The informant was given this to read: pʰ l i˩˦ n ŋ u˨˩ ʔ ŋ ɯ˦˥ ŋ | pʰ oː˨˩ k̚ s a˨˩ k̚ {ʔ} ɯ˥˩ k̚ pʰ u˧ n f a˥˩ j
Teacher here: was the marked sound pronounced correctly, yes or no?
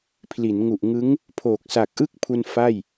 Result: yes